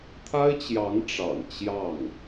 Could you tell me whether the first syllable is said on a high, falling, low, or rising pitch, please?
high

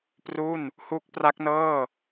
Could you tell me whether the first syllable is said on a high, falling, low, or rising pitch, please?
falling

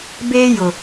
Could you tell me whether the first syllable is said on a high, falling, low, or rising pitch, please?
high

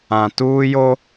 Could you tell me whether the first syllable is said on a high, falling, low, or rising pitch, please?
low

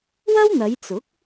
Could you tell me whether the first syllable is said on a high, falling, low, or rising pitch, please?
high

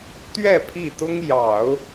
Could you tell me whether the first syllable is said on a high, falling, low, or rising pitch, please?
falling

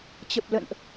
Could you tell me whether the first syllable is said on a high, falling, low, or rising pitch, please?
low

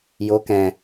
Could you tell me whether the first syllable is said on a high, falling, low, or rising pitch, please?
rising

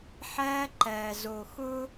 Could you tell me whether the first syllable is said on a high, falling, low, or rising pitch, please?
high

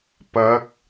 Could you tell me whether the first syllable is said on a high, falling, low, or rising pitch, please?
rising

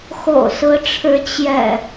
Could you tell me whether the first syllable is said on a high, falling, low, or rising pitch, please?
low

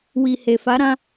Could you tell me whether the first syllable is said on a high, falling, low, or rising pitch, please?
low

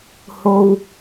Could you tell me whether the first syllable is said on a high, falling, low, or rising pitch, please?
low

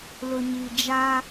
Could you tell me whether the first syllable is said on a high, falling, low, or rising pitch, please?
low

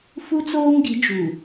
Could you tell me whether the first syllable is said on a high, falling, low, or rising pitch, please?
high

